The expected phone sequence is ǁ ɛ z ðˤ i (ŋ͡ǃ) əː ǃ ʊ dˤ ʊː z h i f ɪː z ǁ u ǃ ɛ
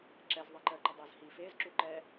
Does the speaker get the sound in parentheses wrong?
yes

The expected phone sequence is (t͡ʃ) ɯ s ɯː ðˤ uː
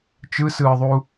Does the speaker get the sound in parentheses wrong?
no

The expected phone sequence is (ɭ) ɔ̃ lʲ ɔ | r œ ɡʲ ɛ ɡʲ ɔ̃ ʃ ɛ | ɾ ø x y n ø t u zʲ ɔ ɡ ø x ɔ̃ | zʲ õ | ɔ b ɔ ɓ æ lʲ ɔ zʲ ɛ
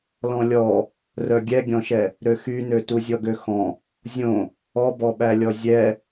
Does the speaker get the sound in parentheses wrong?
yes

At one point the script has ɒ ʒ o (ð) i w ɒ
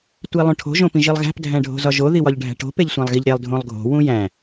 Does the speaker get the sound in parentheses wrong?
no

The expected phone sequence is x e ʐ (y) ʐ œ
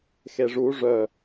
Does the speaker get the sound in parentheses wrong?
yes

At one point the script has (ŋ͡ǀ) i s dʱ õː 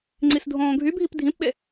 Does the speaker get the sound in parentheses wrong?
no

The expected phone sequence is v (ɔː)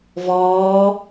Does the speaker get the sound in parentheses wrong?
no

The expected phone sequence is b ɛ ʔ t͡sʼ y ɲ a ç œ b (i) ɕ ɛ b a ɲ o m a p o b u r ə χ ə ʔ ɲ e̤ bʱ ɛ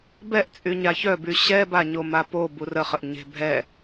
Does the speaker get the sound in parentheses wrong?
yes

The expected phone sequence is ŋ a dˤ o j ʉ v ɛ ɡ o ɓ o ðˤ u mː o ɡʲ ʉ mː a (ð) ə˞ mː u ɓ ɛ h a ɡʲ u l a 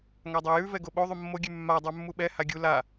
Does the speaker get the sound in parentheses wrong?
yes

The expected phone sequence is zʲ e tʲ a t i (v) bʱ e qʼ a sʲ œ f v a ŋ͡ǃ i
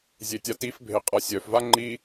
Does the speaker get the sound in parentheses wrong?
yes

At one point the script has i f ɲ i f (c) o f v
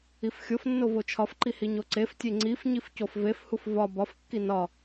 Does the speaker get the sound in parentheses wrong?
no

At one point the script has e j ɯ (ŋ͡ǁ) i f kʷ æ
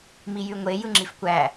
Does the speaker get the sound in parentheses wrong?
no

